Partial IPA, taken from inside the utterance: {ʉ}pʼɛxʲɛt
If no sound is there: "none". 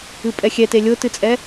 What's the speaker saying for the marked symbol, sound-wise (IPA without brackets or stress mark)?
ɨ